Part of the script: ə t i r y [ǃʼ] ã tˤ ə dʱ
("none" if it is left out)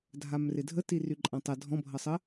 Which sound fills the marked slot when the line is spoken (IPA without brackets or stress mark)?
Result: ǃʼ